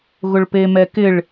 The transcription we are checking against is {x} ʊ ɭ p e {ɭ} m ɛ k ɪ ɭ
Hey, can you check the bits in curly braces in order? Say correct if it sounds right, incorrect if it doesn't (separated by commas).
incorrect, incorrect